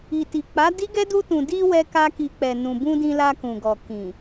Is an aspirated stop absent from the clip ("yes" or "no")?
yes